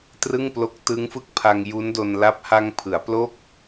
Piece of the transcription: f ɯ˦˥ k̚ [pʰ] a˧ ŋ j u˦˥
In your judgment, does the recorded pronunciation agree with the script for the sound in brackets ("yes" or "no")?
yes